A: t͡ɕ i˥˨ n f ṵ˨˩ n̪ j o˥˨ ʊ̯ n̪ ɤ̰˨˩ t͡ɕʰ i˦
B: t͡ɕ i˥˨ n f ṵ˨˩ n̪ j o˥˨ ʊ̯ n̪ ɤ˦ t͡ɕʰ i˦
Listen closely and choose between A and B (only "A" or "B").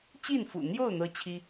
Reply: B